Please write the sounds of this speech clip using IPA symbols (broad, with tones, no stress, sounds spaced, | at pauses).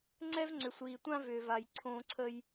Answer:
ŋ͡ǀ ɛ˦ v ŋ͡ǀ ʏ˨ sʷ iː˨ tʷ ã˦ v ʏː˨ v a˨ j ǀʰ õː˨ ǀʰ ə˨ j